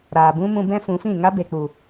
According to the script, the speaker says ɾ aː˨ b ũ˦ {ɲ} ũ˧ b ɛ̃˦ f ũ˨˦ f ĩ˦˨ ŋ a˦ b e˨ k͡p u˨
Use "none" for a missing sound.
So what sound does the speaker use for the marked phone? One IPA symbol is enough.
m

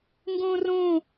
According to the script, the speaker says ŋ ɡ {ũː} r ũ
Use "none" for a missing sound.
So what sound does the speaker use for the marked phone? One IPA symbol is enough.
ũː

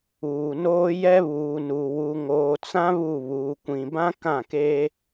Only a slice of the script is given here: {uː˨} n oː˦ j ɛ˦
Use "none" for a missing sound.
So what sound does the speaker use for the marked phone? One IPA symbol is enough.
uː˨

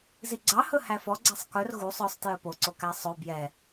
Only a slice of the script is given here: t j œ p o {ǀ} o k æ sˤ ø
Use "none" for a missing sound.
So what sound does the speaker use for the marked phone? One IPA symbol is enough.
ǀ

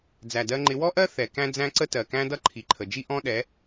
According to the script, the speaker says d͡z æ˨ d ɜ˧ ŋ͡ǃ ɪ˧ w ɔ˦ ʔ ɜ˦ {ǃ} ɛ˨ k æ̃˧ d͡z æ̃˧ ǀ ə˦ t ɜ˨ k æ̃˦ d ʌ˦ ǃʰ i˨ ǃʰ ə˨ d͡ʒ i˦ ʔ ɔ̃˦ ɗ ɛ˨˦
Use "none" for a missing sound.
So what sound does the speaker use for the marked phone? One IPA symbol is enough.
θ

